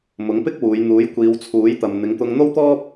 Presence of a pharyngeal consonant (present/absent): absent